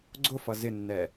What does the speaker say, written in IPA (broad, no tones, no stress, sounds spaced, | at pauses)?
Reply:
ɡ͡ǀ ʊ f ʌ z ɪ nː ɛ